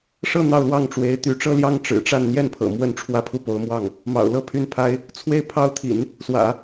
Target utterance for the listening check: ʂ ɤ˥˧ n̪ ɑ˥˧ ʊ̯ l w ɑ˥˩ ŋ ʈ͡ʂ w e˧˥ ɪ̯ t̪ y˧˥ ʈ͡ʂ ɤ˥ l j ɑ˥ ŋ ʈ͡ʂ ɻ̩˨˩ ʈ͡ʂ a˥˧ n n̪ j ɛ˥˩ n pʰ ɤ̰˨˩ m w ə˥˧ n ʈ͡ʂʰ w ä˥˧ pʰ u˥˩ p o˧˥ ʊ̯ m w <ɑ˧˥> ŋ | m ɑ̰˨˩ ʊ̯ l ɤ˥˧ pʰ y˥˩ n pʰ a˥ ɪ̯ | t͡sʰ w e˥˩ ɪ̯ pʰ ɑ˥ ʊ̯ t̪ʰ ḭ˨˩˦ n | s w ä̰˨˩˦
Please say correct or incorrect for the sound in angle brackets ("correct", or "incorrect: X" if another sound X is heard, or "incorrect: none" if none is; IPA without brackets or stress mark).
incorrect: ɑ˥˩